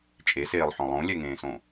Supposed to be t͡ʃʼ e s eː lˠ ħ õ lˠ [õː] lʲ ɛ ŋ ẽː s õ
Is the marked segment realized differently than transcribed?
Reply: yes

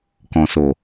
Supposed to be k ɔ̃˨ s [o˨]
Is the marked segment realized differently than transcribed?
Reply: no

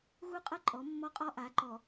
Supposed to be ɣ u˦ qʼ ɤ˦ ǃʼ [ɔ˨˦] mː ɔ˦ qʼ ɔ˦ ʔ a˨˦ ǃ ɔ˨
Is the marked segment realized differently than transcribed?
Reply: no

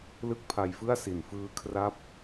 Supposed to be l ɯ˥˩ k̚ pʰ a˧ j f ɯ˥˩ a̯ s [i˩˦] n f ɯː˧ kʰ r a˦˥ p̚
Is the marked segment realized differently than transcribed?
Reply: yes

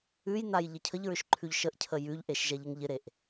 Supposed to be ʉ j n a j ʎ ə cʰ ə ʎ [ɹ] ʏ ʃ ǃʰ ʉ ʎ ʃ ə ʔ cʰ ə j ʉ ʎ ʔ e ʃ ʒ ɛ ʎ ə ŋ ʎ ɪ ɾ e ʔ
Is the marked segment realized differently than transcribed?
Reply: no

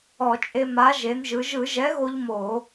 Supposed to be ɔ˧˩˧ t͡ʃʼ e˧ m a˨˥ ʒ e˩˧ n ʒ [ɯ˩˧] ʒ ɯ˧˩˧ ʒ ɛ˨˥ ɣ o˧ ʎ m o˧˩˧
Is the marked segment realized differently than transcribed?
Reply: no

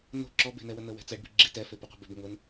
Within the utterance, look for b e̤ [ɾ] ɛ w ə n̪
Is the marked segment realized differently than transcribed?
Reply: yes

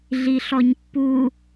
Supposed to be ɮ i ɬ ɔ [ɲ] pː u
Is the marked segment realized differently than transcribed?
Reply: no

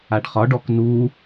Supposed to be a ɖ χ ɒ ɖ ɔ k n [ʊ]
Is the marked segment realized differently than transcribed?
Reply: yes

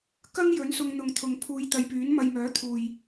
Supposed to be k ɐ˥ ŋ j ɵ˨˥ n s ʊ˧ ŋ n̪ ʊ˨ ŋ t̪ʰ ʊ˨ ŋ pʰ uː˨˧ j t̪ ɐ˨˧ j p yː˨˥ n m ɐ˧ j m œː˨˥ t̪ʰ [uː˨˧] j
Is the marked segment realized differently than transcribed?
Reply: yes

